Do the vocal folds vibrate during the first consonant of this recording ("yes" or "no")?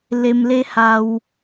yes